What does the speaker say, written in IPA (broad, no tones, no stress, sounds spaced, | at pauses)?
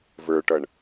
v ə˞ ʈ ʌ ɳ